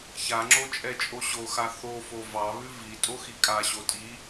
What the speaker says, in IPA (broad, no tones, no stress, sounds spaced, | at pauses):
ç a ŋ͡ǁ o t͡ʃʼ ɛ t͡ʃʼ o ɕ o x a θ o f o v ɑ β ʉ v i tʼ o x i kʼ a ɕ o tʼ i